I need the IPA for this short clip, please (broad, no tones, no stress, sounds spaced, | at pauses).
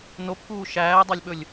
n o p k uː ʃ æː dˤ ɑ lʲ ɓ ɵ lʲ